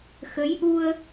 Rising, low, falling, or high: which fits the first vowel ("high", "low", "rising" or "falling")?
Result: rising